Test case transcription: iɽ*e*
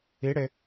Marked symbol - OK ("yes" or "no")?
yes